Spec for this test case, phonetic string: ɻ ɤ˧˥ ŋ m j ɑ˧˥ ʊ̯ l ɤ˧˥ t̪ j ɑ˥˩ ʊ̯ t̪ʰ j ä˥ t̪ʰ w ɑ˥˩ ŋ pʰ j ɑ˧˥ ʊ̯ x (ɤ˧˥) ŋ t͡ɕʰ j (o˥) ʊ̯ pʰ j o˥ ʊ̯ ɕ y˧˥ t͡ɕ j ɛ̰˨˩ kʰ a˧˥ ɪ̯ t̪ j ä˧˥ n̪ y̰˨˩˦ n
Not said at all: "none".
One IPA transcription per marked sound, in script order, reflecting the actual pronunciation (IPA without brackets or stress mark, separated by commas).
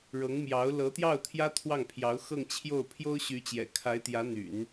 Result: ɤ˥˧, o˥˩